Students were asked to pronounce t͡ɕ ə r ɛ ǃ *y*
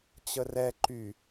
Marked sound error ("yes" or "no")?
no